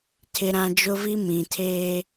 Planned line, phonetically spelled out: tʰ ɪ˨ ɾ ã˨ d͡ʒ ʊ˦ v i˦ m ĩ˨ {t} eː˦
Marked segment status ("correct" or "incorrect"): incorrect